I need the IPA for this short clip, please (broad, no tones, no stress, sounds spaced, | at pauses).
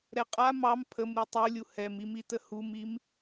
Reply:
ɾ ɛ qʼ a m ɑ m pʰ ə m ɾ i tˤ u lʲ u h ɛ m i m i t ə h u m i m